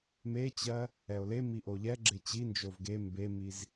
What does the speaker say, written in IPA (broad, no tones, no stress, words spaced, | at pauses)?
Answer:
met͡ɕɜ | ɛo̯lemi ʔoʎɛɡ͡ǁe t͡ɕind͡ʒov ɡe mbemiz